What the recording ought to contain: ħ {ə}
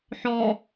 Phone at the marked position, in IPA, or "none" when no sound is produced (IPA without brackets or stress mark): ɔ